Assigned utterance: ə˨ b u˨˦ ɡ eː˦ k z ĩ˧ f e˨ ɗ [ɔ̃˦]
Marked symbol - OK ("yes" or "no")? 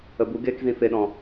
no